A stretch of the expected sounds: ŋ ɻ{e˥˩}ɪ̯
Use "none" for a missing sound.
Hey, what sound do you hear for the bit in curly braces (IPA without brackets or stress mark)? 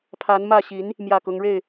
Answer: e˥˩